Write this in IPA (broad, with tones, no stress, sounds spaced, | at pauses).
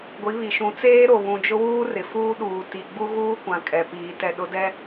ɡʷ i˨˦ β i˨ ʃ ũ˨˦ t͡s eː˦ ɾ o˨ β ũ˨ d͡ʒ ʊ˦ w uː˦ r ɪ˨ f uː˦ ɗ uː˨ t i˨ ɡ͡b u˦ ɣ uː˦ kʷ ã˨ kʼ ɛ˨ p iː˨ t ɛ˨ ɗ ʊ˨˦ d ɛ˦